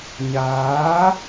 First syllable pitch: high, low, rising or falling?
rising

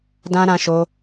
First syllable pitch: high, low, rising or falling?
high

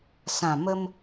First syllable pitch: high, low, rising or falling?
low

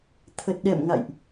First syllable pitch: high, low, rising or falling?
low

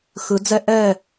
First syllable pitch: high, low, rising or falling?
rising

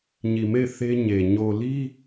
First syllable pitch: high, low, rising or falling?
low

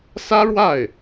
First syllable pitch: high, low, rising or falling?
high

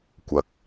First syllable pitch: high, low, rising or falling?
low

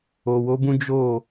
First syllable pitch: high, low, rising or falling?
low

